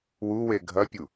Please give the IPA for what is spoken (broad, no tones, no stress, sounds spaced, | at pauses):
w u w e ɡʱ ɐ pʲ u